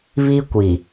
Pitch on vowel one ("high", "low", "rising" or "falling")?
high